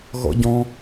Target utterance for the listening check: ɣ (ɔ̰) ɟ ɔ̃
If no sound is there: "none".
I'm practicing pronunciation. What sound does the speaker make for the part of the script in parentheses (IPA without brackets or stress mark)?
ɔ̰